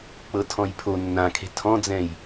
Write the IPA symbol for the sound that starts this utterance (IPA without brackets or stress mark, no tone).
k͡p